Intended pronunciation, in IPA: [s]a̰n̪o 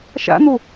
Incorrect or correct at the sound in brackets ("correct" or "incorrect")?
incorrect